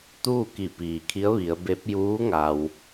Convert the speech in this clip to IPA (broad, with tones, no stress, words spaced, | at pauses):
t̪uː˥˨ ki˧˩piː˩kʰi˧˥ə̯ ʋi˩˧ə̯be˧˥p̚ juː˧˥ ŋa˩w